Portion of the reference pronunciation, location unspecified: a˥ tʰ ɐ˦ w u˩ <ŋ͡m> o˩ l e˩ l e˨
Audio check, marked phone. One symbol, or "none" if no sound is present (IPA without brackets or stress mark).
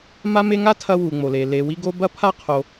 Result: ŋ͡m